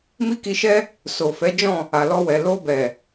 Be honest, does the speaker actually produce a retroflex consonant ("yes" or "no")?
no